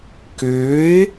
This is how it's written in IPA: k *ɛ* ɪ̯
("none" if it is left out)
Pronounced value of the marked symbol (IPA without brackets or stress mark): ø